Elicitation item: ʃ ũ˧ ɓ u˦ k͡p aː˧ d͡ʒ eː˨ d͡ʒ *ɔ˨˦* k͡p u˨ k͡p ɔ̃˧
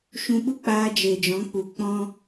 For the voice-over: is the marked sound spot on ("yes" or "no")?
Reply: no